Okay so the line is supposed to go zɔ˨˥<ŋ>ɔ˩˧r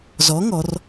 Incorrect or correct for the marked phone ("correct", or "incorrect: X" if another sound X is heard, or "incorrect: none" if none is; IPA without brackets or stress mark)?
correct